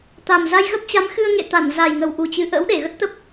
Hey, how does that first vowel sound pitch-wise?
low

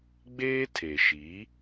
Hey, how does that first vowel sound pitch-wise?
high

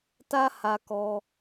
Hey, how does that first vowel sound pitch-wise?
high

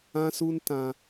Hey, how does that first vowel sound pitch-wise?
high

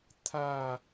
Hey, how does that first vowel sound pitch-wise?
falling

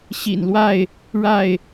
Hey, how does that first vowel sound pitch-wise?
low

